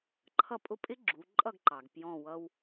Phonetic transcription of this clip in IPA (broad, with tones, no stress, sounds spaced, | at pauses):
ǃʰ ʌ˦˨ pʼ ʊ˦˥ pʼ ɪ˦˥ ɡ͡ǁ u˩˧ ǃʼ ʌ˦˨ ɡ ǃ ɑ˩ ɡ p j ɔ̃˦˨ w ʌ˦˥ w